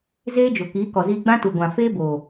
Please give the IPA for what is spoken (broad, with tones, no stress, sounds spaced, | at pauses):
z eː˦ d͡ʒ o˨ k iː˨˦ k ɔ˨ z iː˧ ɡ͡b ã˦ t u˨ ɡʷ ã˨ f eː˦ b oː˨